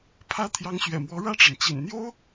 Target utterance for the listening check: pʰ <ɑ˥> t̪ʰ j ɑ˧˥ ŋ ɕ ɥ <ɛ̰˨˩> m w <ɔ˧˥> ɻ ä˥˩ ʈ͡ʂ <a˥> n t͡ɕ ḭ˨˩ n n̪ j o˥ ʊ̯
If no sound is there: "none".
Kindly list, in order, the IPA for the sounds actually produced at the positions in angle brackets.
ä˥, ɛ̰˨˩, ɔ˧˥, a˩

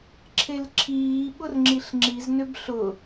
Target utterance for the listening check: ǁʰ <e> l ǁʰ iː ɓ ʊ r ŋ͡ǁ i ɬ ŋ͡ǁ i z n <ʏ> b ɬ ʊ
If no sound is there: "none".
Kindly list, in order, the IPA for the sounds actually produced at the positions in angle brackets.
e, ʏ

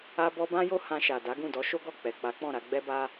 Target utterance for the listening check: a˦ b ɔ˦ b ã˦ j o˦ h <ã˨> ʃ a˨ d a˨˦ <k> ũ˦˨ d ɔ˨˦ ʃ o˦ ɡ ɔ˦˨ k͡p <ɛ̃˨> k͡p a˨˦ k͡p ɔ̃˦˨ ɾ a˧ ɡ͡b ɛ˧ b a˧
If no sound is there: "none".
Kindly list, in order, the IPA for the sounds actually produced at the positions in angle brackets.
ã˧, ɡ, ɛ˨

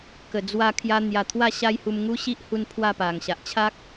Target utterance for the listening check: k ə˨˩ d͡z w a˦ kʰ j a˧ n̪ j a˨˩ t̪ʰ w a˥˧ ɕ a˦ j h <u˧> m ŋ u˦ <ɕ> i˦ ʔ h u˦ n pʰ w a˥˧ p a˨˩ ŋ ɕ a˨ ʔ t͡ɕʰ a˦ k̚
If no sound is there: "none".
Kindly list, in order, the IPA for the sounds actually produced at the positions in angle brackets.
u˧, ɕ

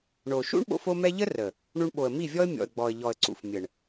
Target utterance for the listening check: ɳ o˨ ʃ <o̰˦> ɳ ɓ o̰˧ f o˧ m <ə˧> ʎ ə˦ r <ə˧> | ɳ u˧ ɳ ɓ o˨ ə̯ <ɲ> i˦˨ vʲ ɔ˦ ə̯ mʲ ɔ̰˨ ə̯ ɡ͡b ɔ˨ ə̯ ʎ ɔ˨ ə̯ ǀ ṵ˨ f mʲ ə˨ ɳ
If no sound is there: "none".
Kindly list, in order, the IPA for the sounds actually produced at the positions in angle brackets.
ṵ˦, ɛ˧, ə˨, m

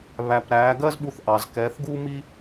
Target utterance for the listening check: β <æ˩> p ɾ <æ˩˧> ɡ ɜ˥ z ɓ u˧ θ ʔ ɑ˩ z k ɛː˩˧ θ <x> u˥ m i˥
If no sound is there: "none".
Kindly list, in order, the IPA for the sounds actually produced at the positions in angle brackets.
æ˩, æː˩˧, ɡ

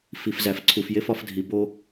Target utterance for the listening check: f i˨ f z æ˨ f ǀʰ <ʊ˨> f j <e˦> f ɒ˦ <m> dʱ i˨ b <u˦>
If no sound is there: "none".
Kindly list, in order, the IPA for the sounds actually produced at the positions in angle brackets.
u˨, e˦, f, o˦

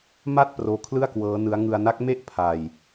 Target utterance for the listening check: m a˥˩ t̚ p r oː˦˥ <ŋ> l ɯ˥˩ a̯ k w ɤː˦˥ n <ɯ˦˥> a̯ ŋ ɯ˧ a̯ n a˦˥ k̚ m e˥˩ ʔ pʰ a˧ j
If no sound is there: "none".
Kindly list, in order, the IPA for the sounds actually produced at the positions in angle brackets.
kʰ, ɯ˦˥

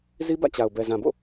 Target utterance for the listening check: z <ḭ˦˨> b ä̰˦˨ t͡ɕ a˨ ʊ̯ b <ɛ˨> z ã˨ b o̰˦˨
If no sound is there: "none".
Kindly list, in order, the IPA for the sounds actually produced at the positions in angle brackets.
i˦, ɛ˨

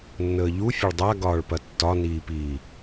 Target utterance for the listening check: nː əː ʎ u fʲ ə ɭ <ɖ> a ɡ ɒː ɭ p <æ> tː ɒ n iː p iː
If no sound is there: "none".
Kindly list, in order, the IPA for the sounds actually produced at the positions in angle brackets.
dˤ, ɐ

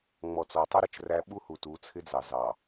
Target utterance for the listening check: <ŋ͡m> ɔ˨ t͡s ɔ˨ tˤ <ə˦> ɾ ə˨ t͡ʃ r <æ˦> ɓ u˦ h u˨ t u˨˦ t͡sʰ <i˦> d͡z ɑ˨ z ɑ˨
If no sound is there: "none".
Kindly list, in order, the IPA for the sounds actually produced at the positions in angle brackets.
ŋ͡m, ɪ˦, æ˦, ɪ˦

